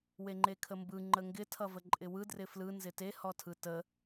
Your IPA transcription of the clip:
w e ŋ͡ǃ e kʰ ə m b ɯ ŋ͡ǃ ə ŋ ɡ ɪ tʰ ʌ v ə ǃʼ ɪ w ɯ d r ɪ f l ɯ n z ɪ t e h ɔ tʰ ɯ t ə

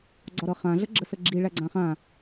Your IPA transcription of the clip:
ɡ͡ǀ ɒ ɾ ɤ χ ã ɮ ə ɡ͡ǁ ə s ə ɡ͡ǁ i ɭ æ ɡ͡ǀ ã χ ã

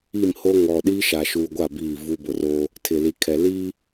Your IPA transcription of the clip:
i˦˨ m h o˦ ŋ ɔ˨ ɗ iː˦ ʃ aː˨ ʃ uː˨ ɡʷ a˦˨ b iː˦˨ v u˦ b ʊ˨ r oː˦ | tʰ ɪ˨ l i˨ kʰ ɛ˨ l iː˦

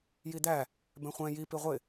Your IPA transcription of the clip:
j i d̪ æ | b ɛ̃ χʷ ɛ̃ j i p i ʁʷ ɪ

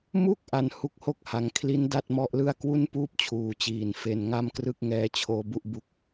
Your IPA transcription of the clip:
m u˥˩ k̚ ʔ a˧ n h u˦˥ k̚ h o˥˩ k̚ h a˩˦ ŋ kʰ l i˦˥ n d a˥˩ t̚ m ɔ˦˥ ʔ l ɯ˥˩ a̯ k w u˥˩ n p uː˥˩ p̚ t͡ɕʰ uː˨˩ t͡ɕ iː˨˩ n f e˧ n ŋ a˥˩ m k r ɯ˥˩ k̚ ŋ ɛː˦˥ t͡ɕʰ oː˦˥ b u˥˩ ʔ b u˦˥ k̚

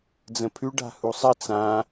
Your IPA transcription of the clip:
d͡z ə̃ pʰ ʉ ɖ a̤ h u sˤ ə t͡s ã

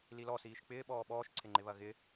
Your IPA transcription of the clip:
l i l ɔ s iː ʃ k͡p ɪː ɓ ɔː ɓ ɔː ʃ ǀʰ ɪ ŋ͡ǃ ɪ β ɐ ɣ ɪ

